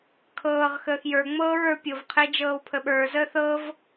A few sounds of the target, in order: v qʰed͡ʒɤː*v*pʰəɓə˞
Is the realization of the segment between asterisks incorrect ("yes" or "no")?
yes